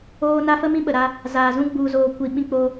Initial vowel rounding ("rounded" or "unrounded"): rounded